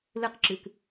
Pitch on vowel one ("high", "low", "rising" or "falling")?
high